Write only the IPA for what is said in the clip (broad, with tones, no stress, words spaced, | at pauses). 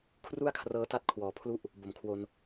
kʰru˥˩a̯kʰrɤː˦˥ta˦˥t̚ kʰwɔː˨˩pʰlu˥˩ʔ | bo˨˩mkʰwo˧n